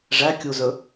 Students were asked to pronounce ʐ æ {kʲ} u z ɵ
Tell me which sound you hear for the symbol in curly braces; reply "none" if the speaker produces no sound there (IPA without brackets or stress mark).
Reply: kʲ